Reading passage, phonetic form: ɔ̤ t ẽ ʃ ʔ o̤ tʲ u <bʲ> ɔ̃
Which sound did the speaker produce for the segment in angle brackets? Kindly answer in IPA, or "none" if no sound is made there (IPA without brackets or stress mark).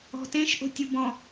b